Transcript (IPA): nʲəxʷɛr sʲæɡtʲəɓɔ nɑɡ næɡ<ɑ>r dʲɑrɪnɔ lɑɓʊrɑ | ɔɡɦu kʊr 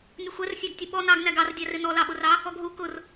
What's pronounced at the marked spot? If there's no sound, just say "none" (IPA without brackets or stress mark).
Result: ɑ